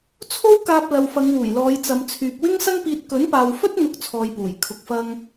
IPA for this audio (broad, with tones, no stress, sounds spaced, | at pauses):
t͡sʰ o˥ w k aː˧ p̚ l ɐ˨ w f ɐ˨˧ ŋ w uː˨˩ j l ɔː˨˧ j t͡s ɐ˨ m t͡sʰ yː˨ p̚ w ɪ˥ ŋ s ɐ˥ ŋ p iː˧ t̚ k ɵ˨˥ n p aː˨ w f ɵ˥ t̚ n̪ ʊ˥ k̚ t͡sʰ ɔː˧ j p uː˨˩ j kʰ ʊ˧ k̚ f ɐ˥ ŋ